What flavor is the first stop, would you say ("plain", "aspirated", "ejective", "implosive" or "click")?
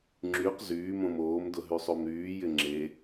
click